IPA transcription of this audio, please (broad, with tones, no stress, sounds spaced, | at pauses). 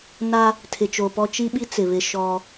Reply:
n a˦ | tʰ ɪ˨ t͡ʃ o˨ p ɔ˦ t͡ʃ i˦ ɓ i˦ t͡s ɪ˨ β ɪ˦ ʃ ɔ˦